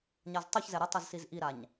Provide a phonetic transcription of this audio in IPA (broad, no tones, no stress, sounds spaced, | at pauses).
ɲ a z tˤ u ç z ɛ ɾ ə tˤ ɯ z s i z ʔ i ɾ a ɲ